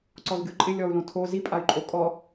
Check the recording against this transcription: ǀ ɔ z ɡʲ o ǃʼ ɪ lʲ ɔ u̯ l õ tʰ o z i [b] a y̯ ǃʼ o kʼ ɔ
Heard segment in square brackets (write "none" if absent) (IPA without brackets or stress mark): pʼ